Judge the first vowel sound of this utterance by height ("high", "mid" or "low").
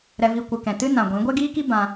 mid